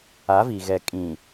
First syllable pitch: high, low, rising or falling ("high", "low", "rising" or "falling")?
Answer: rising